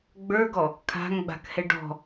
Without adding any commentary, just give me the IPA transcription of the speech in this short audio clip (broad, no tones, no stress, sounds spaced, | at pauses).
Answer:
ɡ͡b ə˞ ɡ ɔ | kʰ a̤ ŋ ɡ͡b a̤ k h ɛ ɖ ɔ̤